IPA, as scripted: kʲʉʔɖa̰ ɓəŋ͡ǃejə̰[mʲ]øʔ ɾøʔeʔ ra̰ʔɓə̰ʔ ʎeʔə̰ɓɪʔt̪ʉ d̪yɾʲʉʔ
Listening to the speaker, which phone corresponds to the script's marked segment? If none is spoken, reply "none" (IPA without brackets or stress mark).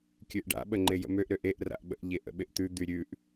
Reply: m